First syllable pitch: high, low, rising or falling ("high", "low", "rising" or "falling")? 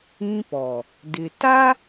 high